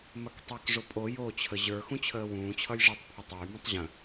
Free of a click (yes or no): yes